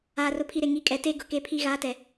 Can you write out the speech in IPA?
aː˨ r ʊ˨ pʰ i˨ ɾ e˨ ŋ i˨˦ kʼ ɛ˨ t e˦ ɡ ʊ˨ k e˦ pʰ i˦ ɣ aː˨˦ t ɛ˨

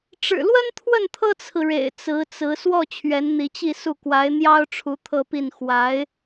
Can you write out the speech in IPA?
ʈ͡ʂ ɻ̩˨˩ l w ə˥ n t̪ʰ w ə˥˩ n t̪ʰ ɤ˥ t͡sʰ ɹ̩˨ ɻ ḛ˨˩ ɪ̯ t͡s ɹ̩˧˥ t͡s ɹ̩˧˥ s w ɔ˥˩ t͡ɕʰ ɥ ɛ˧˥ n n̪ i˧˥ t͡ɕ i˥˧ s u˥˩ k w a˧˥ ɪ̯ n̪ j ɑ˥ ʊ̯ ʈ͡ʂʰ u˧˥ t̪ʰ ɤ˥˧ p i˥˩ n x w a˧˥ ɪ̯

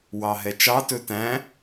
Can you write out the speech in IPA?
w ɑ ɦ ɛ t͡ʃ ɑ t ɵ t æ̃

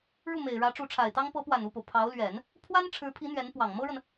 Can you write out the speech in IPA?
ɻ u˥˩ m e˨˩ ɪ̯ ɻ ä˧˥ ʈ͡ʂ u˧˥ ʈ͡ʂʰ a˨˩ ɪ̯ t̪ ɑ˥ ŋ p ɤ˧˥ p w a˨˩ n u˥˩ p o˩ ʊ̯ pʰ ɑ˧˥ ʊ̯ l ɥ ɛ˨˩˦ n | pʰ w a˥ n ʈ͡ʂʰ ɻ̩˧˥ pʰ i˧˥ n̪ ɥ ɛ˧˥ n p w ɑ˨˩ ŋ m ɤ˥ ɻ ə˨ n

